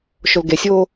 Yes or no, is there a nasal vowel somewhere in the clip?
no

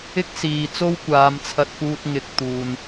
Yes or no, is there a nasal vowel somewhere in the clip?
no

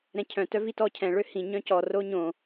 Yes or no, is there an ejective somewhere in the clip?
no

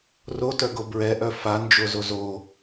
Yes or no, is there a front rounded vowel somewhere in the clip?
yes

